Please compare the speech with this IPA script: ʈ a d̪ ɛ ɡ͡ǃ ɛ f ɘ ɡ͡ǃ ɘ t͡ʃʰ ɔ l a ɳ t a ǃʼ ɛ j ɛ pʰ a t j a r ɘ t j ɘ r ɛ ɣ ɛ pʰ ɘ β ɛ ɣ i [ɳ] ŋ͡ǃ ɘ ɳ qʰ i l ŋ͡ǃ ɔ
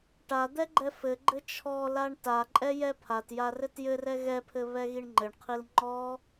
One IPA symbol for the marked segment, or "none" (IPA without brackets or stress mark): ɳ